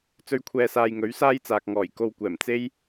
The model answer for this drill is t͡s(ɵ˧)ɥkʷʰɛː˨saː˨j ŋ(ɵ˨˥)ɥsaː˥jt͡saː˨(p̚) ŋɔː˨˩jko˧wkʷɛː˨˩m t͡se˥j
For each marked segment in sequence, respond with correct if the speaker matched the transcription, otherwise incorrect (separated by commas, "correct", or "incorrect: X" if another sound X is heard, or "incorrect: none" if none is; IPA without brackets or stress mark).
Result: correct, correct, incorrect: k̚